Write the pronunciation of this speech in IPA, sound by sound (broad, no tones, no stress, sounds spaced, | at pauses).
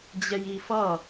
d͡ʑ ɛ j i f ʌ